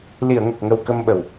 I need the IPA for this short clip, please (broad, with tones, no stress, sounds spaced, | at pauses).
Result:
l i˨˩˨ ə̯ ŋ ə˨˩ k̚ ŋ ə˨˩ w k ə˧ m ɓ ə˨˩ w